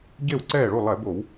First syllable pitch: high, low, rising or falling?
falling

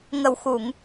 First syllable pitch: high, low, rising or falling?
low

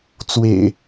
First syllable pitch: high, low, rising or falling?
low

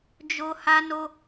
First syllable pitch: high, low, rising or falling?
high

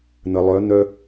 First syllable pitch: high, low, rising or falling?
low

